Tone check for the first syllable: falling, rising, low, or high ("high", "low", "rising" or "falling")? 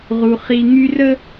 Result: low